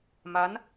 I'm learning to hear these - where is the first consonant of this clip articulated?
lips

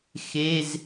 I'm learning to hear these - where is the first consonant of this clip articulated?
velum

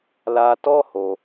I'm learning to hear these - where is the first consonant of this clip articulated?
tongue tip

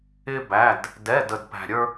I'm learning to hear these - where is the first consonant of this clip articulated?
lips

